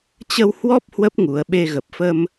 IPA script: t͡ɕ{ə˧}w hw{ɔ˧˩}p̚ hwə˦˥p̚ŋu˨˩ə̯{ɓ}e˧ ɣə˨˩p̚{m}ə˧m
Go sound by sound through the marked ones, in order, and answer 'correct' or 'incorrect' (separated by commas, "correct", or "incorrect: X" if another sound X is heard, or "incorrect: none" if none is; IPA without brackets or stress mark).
correct, incorrect: ɔ˦˥, correct, incorrect: f